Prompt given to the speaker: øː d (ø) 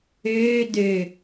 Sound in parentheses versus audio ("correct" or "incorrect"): correct